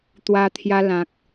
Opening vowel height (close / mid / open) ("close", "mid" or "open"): open